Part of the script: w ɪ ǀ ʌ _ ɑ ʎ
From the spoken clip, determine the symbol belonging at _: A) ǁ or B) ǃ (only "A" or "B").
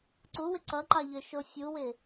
B